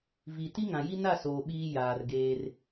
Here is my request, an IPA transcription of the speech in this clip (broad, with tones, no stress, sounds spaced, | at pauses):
v i˨ t i˦ ŋ ã˨ j i˦ n a˦˨ s oː˨ ɓ iː˦ j aː˨ r ɡ eː˦ r